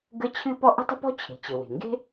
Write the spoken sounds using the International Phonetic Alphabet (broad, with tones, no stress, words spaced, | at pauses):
ɡə˥ t͡ɕʰɨ˥pɔ˥ ʔə̤˥tˤə̤˥pɔ̤˥ t͡ɕʰe̤˩t͡ɕɘ˩ we̤˩ŋɡe̤˥